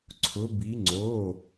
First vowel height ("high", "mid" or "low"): high